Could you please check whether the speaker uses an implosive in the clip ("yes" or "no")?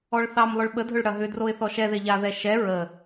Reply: yes